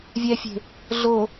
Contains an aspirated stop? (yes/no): no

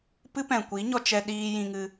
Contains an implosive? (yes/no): yes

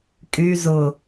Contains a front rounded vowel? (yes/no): yes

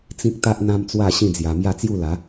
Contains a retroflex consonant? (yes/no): no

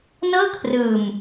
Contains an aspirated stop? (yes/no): yes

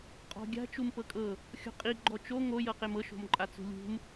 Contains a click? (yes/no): yes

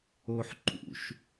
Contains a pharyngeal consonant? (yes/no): yes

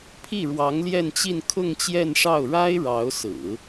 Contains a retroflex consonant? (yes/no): yes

